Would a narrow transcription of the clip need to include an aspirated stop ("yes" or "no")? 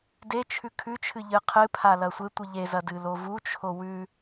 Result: yes